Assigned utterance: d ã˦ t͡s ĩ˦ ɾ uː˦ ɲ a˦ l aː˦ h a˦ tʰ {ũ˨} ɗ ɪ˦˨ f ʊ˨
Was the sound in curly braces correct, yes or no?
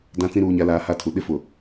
no